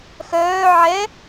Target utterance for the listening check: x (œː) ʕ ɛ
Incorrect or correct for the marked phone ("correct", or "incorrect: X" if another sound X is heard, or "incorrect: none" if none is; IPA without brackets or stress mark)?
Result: correct